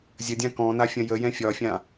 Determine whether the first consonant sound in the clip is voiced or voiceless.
voiced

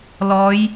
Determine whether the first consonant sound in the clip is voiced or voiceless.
voiced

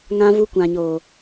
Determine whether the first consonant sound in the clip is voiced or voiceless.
voiced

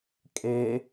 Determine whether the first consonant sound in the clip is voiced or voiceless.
voiceless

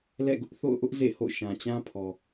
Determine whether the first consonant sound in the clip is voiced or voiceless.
voiced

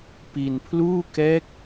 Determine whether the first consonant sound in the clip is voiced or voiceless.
voiceless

